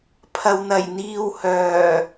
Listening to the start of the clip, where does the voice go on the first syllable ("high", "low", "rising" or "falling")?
low